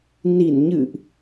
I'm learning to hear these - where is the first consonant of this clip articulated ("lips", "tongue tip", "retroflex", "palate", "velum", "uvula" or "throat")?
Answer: tongue tip